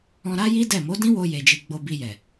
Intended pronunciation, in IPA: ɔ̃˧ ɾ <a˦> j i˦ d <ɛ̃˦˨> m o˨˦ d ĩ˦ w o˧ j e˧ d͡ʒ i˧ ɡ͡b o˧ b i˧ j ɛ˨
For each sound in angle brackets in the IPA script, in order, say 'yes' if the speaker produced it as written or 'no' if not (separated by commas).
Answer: yes, no